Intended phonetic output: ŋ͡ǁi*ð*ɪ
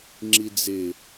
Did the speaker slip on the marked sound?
yes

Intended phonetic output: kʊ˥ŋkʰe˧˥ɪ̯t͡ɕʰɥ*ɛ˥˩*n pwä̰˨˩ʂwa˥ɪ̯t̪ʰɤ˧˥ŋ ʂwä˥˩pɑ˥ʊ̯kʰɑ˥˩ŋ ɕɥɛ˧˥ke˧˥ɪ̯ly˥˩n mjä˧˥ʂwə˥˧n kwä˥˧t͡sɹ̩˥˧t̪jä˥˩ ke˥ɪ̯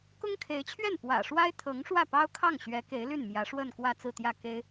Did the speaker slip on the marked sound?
no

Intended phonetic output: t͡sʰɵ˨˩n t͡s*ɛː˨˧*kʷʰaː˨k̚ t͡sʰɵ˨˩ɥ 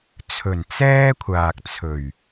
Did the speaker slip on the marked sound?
yes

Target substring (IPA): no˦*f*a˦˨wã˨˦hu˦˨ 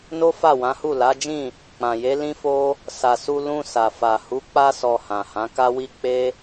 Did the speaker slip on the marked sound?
no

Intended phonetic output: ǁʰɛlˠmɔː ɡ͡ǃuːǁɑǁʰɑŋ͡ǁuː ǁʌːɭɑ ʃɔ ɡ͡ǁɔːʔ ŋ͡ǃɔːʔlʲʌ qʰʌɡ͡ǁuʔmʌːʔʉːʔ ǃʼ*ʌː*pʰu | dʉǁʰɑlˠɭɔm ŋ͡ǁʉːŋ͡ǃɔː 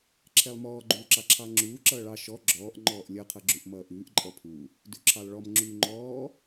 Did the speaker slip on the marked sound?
yes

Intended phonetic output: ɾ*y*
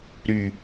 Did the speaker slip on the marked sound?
no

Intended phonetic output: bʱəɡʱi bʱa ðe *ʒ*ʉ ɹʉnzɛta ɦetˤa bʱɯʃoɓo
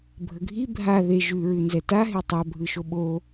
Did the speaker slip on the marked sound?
no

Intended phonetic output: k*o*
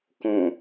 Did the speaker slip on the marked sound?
yes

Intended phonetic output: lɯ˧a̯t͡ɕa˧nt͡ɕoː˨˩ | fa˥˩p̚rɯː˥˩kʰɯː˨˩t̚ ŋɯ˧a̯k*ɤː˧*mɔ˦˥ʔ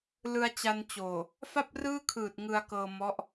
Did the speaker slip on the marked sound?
no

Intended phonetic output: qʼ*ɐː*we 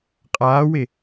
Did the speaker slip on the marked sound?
yes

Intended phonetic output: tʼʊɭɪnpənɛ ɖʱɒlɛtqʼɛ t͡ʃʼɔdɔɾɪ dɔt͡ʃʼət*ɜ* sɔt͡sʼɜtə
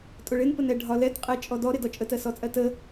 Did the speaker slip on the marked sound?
no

